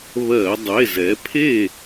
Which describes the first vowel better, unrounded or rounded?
unrounded